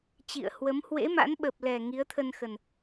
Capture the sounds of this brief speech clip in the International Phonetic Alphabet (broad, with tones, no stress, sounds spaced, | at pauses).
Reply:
t͡ɕ ḭ˧˨ ə̯ h w ə˨˦ m h w ḛ˧˥ m a̰˧˥ n ɓ ə˨˩ p̚ l ɛ˨˩ ŋ i˨˦ ə̯ t̪ʰ ə˧ n x ə˨˩ n